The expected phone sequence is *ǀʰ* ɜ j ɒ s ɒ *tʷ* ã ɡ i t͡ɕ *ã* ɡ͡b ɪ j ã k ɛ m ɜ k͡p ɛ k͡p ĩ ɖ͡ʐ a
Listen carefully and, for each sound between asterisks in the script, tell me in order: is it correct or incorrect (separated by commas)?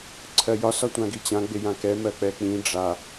correct, correct, correct